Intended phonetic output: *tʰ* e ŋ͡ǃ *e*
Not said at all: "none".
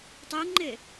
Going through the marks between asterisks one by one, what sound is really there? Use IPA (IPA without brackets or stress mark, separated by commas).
tˤ, e